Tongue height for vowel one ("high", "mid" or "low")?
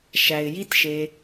low